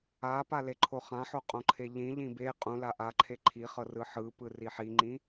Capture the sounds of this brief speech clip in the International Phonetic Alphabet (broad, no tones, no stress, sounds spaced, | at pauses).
a p a l e ǃʰ o χ ã ħ o qʼ õ ǃʰ e ʎ ĩ ʎ ĩ b e qʼ ũ l a ʔ a ǃʰ e ǃʰ i χ ɤ r ɯ ħ ɯ p ɯ r i ħ i ŋ͡ǃ ĩ